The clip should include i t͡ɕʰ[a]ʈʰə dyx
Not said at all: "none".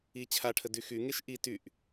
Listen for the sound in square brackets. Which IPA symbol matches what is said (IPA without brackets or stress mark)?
a